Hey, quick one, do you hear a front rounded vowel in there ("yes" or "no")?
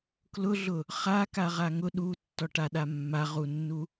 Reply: no